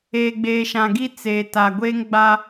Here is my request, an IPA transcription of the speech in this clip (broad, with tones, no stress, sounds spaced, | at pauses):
eː˨ ɡ͡b eː˨ ʃ ã˨ ɡ i˦ t͡s eː˨ t a˨ ɡʷ eː˦ ŋ ɡ͡b a˦